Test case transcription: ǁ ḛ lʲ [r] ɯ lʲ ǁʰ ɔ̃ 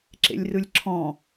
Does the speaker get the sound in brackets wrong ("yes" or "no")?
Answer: no